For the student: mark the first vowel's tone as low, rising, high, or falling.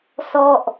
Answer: falling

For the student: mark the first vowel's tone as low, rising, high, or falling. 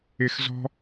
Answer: low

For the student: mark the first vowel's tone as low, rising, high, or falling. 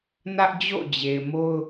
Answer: high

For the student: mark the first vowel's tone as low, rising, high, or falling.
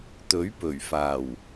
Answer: rising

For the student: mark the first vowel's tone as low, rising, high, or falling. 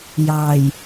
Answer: low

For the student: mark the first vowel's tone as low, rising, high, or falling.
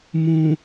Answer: low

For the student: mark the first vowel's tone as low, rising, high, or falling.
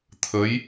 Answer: rising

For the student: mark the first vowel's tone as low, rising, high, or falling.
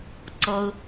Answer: high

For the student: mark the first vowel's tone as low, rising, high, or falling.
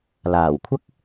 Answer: low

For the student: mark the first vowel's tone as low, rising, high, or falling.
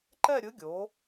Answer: falling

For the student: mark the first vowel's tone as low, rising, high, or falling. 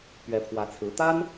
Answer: rising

